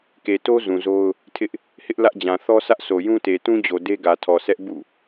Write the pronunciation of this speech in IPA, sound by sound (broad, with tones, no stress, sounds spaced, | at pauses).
k e˨ t o˦ z ũ˨ z o˦ ʊ̯ | tʰ ɪ˦ ʔ | h ɪ˦ ʔ l ä˦ ʔ d͡ʑ ã˨ θ ɔ˦ s ä˦ ʔ s o˨ j ũ˦ t e˨ t ũ˦ d͡ʑ o˨ d e˦ ɡ ä˨ tʰ ɔ˨ s ɛ˦ ʔ b ṵ˦˨